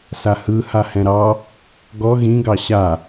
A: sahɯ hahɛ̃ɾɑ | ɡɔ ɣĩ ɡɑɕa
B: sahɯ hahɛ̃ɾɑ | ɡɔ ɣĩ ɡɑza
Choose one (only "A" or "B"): A